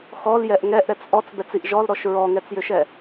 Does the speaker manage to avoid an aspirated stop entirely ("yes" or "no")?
yes